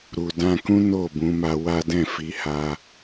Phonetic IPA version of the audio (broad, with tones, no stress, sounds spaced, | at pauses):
ɾ u˨ d ã˧ k ũ˦ n o˦˨ b ũ˨˦ m a˧ w a˦ d ɛ̃˦˨ f i˨˦ h a˧